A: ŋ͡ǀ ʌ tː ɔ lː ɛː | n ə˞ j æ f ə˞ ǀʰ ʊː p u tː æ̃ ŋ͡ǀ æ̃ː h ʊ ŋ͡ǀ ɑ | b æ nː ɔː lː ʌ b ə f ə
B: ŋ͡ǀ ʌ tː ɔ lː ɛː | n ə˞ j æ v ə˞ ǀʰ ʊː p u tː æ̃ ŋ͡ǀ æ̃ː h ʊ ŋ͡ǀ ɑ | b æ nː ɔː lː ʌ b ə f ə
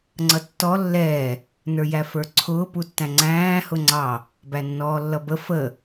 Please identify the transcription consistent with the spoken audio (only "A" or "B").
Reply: A